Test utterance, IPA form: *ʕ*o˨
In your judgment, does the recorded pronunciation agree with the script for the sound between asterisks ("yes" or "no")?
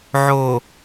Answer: yes